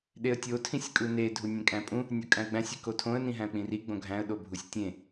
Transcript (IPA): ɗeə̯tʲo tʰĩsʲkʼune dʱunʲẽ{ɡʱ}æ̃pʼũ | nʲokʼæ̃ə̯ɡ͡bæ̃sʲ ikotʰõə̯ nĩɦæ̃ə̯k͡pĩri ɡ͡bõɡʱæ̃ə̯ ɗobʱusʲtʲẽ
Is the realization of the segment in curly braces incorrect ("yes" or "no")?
yes